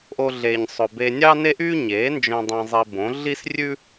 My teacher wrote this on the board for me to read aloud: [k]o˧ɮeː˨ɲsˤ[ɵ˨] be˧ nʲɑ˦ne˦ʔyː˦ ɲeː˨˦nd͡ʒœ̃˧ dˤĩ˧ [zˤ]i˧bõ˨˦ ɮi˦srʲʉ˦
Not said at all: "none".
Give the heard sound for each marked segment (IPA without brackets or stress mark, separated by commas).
ʔ, ɵ˨, zˤ